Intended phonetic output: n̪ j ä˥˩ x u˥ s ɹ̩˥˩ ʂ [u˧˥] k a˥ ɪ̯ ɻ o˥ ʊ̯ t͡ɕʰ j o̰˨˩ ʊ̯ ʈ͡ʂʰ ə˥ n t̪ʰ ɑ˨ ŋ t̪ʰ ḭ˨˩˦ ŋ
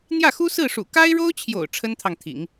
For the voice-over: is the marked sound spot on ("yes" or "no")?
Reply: no